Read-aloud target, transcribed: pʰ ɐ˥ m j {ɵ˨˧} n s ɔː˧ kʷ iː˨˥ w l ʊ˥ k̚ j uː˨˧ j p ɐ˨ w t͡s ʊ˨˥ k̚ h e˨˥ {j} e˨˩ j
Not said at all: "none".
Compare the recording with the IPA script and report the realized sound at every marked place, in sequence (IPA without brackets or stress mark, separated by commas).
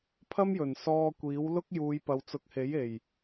ɵ˨˩, j